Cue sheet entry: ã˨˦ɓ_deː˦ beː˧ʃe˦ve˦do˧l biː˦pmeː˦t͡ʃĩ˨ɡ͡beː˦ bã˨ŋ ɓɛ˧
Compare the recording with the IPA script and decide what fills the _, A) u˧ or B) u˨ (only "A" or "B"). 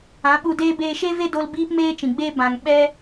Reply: A